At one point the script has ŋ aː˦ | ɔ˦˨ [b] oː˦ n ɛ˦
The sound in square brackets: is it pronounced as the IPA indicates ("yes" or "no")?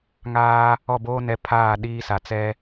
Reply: yes